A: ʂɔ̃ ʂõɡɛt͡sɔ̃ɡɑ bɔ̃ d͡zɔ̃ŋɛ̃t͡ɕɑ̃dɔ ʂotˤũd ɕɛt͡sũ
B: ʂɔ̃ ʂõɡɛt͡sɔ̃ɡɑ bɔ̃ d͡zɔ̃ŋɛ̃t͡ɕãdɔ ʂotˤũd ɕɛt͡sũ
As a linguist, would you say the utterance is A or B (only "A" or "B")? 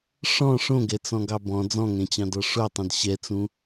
A